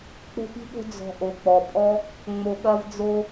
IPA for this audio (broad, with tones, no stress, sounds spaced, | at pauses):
k͡p o̤˦ p i̤˦ ɠ o̤˦ d͡z ɔ̤˧ ʔ o˨ k͡p ɔ˨ pʼ ɔ˦ | ŋ͡m o˧ ɠ ɐ˦ v d͡z o˦